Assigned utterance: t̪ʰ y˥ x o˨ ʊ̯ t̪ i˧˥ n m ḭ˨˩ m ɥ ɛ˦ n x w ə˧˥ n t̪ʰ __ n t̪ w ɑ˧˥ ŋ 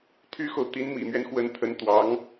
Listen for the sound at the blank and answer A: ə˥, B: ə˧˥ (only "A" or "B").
B